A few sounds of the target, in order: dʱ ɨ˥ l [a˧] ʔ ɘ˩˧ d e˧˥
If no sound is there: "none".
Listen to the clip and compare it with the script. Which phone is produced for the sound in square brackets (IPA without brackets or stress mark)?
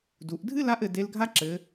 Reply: a˧˥